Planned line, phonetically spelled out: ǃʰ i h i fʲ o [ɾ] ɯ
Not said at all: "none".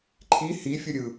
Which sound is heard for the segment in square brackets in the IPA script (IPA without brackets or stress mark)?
ɾʲ